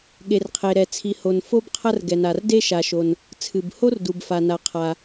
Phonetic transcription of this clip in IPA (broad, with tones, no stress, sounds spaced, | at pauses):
ɠ e˩ r qʰ e˩ ɾ ɛ˩ t͡sʰ i˩ h o˩ n f o˥ b qʰ ɐ˥ r ɡ ɛ˩ n a˩ r d e˥ ʃ a˩ ʃ o˩ n | t͡sʰ ɨ˩ b h o˥ r d u˩ b f a˩ n a˩ qʰ a˩